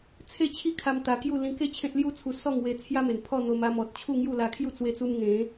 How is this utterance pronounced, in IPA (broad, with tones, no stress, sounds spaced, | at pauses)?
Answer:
t͡sʰ e˥˧ t͡ɕʰ i˥˧ kʰ a˧ m t̪ a˧ k j u˥˧ l ĩ˧ k e˥˧ t͡ɕʰ ẽ˦ t̚ l j u˦ t͡sʰ u˧ s ɔ˥˧ ŋ w e˧ t͡sʰ j a˦ m e˨˩ n pʰ ɔ˥˧ n̪ o˧ m a˧ m ɔ˨ t̚ t͡ɕʰ u˥˧ ŋ j u˥˧ l a˧ kʰ j u˥˧ t͡s w e˧ t͡s u˧ m ŋ ẽ˨˦